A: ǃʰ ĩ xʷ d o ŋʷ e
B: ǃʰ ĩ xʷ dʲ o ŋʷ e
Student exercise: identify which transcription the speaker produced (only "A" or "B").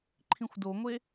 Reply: A